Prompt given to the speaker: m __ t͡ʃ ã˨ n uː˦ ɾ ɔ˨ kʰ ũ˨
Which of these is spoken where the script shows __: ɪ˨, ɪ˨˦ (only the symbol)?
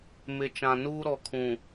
ɪ˨